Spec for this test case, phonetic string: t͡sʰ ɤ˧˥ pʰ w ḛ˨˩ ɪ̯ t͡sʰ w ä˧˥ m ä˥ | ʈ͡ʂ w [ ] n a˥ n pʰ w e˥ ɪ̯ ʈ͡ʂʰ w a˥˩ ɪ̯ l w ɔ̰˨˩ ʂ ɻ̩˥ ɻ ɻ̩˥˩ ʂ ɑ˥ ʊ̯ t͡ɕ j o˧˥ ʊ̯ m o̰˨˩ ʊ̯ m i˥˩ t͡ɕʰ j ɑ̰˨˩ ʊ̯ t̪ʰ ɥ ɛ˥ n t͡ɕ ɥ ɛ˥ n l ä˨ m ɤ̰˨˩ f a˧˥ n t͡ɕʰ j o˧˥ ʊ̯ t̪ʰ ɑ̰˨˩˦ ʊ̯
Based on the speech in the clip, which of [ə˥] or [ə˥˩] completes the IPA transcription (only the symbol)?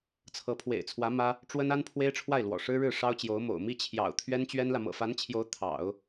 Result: ə˥